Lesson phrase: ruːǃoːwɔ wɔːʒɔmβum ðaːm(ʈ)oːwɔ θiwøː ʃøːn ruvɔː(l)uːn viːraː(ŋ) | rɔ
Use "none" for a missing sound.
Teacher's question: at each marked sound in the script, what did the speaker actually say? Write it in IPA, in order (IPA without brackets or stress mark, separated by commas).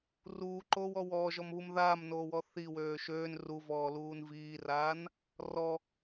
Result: n, l, n